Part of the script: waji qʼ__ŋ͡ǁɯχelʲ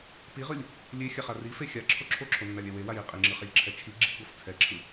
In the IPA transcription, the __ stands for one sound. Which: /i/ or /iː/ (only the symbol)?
i